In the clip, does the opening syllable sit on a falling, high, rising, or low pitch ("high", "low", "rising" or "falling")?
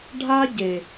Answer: high